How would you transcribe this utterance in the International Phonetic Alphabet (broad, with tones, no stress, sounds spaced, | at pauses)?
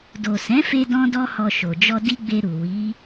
d o˨ s ɛ̃˨˦ f e˧ d ɔ̃˦ d ɔ˦ h ɔ˧ ʃ o˨ d͡ʒ ɔ˧ d i˦ ɡ͡b e˧ ɾ u˨ w i˨˦